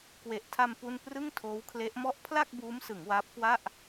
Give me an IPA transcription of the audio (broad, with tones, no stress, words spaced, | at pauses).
kwe˨˩ʔtʰa˧m pu˥˩n prɯ˥˩ŋtʰoː˦˥wkʰle˦˥ʔmɔ˥˩ʔ pʰla˥˩k̚ buː˦˥msɯ˩˦ŋ waː˦˥p̚kwa˥˩ʔ